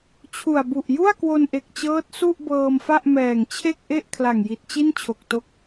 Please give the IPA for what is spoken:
t͡ɕʰ u˨˩ a̯ b u˨˩ ʔ j u˥˩ a̯ k w o˧ n ʔ e˨˩ k̚ t͡ɕ ɤː˦˥ t̚ s u˥˩ ʔ b ɤː˧ m f a˥˩ ʔ m ɛː˨˩ ŋ t͡ɕʰ e˥˩ k̚ ʔ e˥˩ ʔ kʰ l a˨˩ ŋ j i˨˩ t̚ t͡ɕ i˥˩ n t͡ɕʰ o˨˩ k̚ t o˦˥ k̚

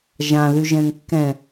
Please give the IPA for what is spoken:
ʒ ã ð y ʒ ɛ̃ ŋ kː ɛ̃

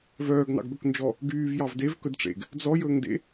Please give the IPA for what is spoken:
v œː ɡ n ɑ̰ ɡ b ɵ k n d͡ʒ ɔ | ɡ yː v j ɑ v d e v k ɵ d ʈ͡ʂ ḛ ɡ | d͡z ɔ j ɵː ŋ d ḛ

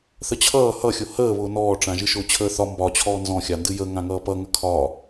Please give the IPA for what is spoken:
θ ə t͡ɕʰ ʌː h ʌ xʲ ʊ h əː β ʊː n ɔː ʈ͡ʂ ã ʒ ɨ ʃ ʊː t͡ɕʰ əː θ ɒ m b ɒ t͡ɕʰ ɔː n z ɔ̃ xʲ a n d ɨ j ə ŋ ã ŋ ʌː p ʌ ŋ ə kʰ ɒ

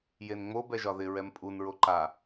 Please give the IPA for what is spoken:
j e n ŋ͡m o b ɛ ʒ ɒ ð ɪ ɹ ɛ m pʼ u n ɹ o ǃ a

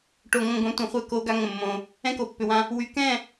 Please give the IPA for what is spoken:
ʈ o˨ ŋ õ˨ ɡ õ˨˦ tʷ ɛ̃˨ χʷ ɛ˦˨ k o˦ ɡ a˦ ŋ ə̃˦˨ mː õ˦ | ɛ̃˦ k o˨ pː ʏ˨ w ã˦ | w y˨ k ɛ̃˦˨

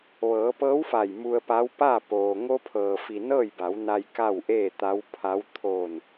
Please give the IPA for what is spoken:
ʋ ɤː˩˧ p ɤː˧˥ w f a˧˩ j m u˧ ə̯ p a˧˥ w p a˥˨ p oː˩ ŋ o˧ pʰ ɤː˩ f i˩ n ɤː˥˨ j b a˩˧ w n a˧ j k a˥˨ w ʔ eː˥˨ t̪ a˧˥ w pʰ a˧˥ w t̪ʰ oː˧˩ n

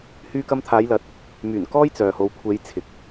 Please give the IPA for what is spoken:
h yː˧ k ɐ˧ m t̪ʰ aː˨˧ j l ɐ˨˥ t̚ | m yː˨˩ n k ɔː˥ j t͡s œː˨ h o˨˧ w kʷʰ e˨˧ j t͡sʰ ɪ˨ k̚

